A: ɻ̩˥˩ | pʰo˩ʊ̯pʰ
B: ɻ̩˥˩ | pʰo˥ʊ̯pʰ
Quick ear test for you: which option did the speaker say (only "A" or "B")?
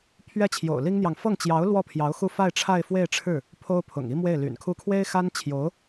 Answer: B